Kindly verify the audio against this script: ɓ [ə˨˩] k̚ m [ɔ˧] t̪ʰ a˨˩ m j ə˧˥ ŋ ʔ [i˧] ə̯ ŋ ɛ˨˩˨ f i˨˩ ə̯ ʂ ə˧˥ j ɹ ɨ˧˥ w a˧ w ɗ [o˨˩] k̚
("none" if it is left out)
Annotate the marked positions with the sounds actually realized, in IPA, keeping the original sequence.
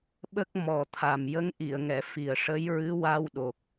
ə˦˥, ɔ˨˩, i˨˩˨, o˨˩

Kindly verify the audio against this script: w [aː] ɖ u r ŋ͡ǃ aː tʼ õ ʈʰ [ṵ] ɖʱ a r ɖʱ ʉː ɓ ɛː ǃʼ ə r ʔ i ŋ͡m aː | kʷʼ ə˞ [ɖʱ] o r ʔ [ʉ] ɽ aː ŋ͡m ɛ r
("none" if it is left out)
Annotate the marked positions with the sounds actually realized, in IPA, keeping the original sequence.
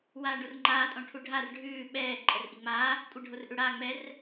aː, u, ɖʱ, ʉ

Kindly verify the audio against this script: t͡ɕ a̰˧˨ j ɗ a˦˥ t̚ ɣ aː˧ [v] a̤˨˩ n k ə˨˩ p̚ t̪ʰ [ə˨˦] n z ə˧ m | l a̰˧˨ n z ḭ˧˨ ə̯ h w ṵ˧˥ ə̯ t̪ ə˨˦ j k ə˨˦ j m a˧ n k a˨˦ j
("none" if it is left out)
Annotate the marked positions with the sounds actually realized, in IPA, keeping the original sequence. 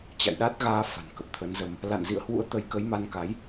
f, ə˨˦

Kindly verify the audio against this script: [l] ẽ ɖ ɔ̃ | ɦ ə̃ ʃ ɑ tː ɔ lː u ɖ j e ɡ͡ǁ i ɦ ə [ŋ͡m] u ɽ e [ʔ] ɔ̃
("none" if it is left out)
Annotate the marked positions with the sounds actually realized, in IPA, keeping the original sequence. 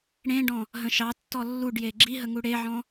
ɽ, ŋ, ʕ

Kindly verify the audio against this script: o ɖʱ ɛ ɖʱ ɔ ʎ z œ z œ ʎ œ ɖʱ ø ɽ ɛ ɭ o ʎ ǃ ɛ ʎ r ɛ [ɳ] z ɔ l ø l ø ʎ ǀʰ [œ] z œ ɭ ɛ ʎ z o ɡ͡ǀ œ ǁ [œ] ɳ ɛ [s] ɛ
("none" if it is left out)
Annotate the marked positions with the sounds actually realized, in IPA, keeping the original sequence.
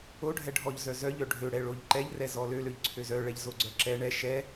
none, ø, ɛ, ʃ

